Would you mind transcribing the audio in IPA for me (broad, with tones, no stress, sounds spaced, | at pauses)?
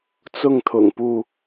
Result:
t͡s ʊ˥˨ ŋ t̪ʰ ʊ̰˨˩ ŋ p u˥˨